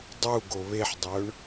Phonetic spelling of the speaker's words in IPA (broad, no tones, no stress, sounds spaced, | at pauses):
dˤ u ɡ o β e ħ dˤ ɵ ɳ